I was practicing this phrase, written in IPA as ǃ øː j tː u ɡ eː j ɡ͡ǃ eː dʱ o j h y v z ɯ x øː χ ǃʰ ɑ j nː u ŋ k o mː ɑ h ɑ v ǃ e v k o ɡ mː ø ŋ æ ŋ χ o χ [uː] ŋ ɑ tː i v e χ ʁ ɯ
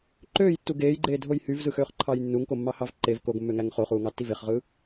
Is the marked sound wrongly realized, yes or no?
no